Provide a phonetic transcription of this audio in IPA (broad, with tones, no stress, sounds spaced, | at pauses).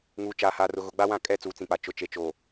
ŋ uː˨ t͡ʃ aː˨ h aː˨ r ʊ˨ ɣ ʊ˨ ɡ͡b a˦ w ã˦˨ kʼ ɛ˦ t͡s uː˨ t͡s ĩ˨ k͡p a˨ t͡ʃ ʊ˨ t͡ʃ e˨ t͡ʃ oː˨